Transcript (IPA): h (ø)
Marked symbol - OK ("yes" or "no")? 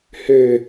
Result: yes